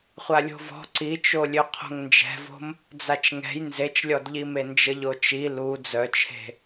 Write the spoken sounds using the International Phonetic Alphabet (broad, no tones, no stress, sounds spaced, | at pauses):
χʷ a lʲ o̤ v ɔ̤ ǀ i t͡ʃ o lʲ ø qʰ o̤ ŋ n d͡ʒ ɛ̤ v o̤ m | d͡z a t͡ʃ ŋ ɛ̤ j n z e t͡ʃ lʲ ɔ d ʎ i m e n d͡ʒ ə ʎ o t͡ʃ i l u d͡z œ t͡ʃʰ e̤